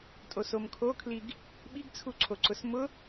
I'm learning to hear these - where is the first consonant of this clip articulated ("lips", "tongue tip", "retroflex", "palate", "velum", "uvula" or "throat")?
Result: tongue tip